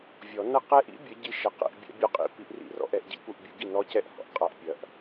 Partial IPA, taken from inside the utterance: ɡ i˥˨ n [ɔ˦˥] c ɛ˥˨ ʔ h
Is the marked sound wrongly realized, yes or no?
no